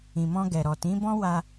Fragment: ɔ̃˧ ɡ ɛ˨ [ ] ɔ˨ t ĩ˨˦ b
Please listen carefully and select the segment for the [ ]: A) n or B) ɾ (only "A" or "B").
B